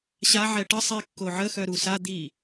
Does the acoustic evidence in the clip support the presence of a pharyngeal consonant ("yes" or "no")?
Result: yes